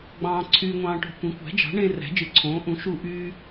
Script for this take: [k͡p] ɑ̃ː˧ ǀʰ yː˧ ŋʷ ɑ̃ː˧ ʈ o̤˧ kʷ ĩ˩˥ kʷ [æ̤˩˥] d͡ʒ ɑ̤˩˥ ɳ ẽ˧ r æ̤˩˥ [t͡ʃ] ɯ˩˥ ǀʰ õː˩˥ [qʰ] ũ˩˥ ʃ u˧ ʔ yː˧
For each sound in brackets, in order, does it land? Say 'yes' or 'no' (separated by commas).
no, yes, no, no